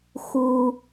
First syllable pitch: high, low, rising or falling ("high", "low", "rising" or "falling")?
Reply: low